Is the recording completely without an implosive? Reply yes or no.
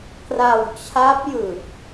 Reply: yes